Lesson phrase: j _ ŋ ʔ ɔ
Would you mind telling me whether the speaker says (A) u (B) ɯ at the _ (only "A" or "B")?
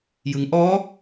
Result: B